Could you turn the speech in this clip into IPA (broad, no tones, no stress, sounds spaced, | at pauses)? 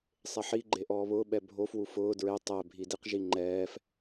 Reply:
sˤ e ħ i ɡ͡ǃ e ʔ ɔː β ʊː ɓ ɛ bʱ o f w u f ʊː d ɹ e tˤ ɛ bʱ i d i q ʒ i ŋ͡ǃ ɛː f